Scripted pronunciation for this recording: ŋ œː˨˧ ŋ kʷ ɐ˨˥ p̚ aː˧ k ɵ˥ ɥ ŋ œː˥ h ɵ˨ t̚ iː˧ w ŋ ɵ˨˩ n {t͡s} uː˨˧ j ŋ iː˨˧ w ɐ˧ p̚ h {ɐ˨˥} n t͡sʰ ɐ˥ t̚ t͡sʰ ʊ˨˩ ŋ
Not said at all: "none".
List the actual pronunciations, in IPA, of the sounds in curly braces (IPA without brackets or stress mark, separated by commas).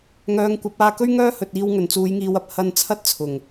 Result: t͡s, ɐ˧